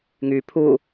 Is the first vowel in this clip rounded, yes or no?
yes